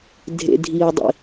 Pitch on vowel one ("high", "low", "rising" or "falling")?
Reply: low